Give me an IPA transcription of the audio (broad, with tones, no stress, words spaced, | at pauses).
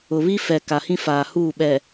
ʊ˨ βi˦fɛ˨ ka˨hĩ˦ faː˨huː˦˨ɓɛ˨